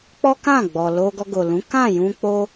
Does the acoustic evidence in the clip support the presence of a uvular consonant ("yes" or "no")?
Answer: no